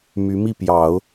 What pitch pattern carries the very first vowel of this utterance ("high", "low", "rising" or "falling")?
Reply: rising